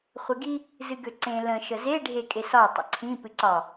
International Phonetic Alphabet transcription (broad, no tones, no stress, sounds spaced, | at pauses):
χʷ e ɡ i | z ɨ ɡ ø ǀ ẽ l ə̃ ʃ ə z e ɖʱ e kʼ e s ɒ tˤ ə̰ ǀʰ ĩ p ɨ ǀ ɒ